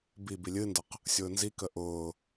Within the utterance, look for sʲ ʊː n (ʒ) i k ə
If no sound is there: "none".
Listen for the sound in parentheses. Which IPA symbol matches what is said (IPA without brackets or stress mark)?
z